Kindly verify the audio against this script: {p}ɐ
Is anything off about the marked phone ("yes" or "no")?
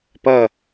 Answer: no